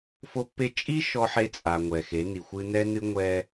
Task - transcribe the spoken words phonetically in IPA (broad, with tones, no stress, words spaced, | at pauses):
fo˦pːe˦ t͡ʃʼi˦ ʃɔ˦ħe˦t͡sʼa˨ ŋʷɛ˨xe˨˦ni˨xʷɨ˦ nɛ˦nɨ˦ ŋʷɛ˦